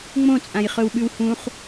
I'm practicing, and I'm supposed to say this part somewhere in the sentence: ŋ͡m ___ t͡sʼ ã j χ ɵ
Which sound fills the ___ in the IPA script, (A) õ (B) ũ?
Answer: A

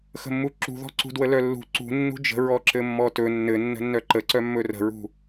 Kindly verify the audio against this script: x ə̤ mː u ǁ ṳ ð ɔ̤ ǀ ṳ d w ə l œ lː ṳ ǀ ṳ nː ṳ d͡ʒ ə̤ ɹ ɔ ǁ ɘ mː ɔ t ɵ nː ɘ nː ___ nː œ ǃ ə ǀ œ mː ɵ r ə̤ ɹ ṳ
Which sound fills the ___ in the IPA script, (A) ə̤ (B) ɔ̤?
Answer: A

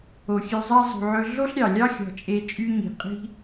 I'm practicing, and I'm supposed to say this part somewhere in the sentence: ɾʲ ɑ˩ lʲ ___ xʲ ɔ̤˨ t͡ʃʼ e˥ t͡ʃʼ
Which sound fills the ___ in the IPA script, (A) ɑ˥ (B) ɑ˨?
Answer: A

